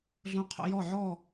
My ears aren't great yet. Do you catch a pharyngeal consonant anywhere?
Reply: yes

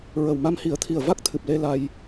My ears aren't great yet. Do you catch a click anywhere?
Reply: no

